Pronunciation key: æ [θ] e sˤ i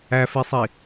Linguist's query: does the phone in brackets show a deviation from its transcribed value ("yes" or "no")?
yes